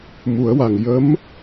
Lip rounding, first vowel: rounded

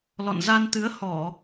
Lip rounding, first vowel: rounded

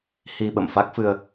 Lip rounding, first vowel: unrounded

